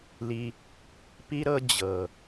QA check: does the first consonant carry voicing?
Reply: yes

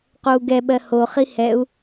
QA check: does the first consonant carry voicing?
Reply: no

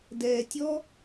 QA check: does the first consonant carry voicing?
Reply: yes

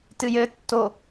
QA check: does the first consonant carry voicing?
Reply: no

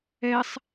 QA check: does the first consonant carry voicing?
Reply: no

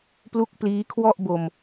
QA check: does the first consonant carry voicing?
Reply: no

